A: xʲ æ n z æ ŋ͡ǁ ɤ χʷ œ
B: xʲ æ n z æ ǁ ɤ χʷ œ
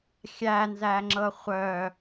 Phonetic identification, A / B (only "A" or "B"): A